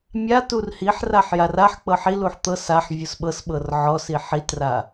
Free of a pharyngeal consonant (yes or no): no